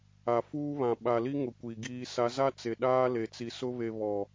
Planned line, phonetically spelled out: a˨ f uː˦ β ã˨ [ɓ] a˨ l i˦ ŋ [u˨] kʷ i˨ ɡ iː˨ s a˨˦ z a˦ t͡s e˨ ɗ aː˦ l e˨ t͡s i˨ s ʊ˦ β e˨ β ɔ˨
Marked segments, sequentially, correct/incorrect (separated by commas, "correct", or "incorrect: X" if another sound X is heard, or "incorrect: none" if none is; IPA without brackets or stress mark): correct, incorrect: ʊ˨